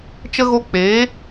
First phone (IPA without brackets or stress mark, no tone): t͡ʃ